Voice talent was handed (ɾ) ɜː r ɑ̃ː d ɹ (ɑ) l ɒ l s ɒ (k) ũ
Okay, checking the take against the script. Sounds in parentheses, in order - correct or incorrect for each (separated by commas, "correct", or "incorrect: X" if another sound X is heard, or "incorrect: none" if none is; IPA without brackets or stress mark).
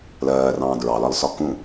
incorrect: l, correct, correct